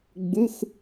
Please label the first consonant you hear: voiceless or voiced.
voiced